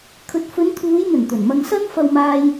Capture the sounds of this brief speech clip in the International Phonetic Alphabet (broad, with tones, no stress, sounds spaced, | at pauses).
kʰ ɵ˨ t̚ f ɵ˨˧ n t̪ʰ uː˨˧ j n̪ ɵ˨˩ n t̪ ɵ˨˩ n m ɐ˧ ŋ s ɐ˥ n f ɐ˧ w m aː˧ j